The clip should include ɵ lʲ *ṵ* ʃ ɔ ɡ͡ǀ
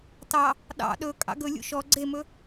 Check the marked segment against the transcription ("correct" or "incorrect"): correct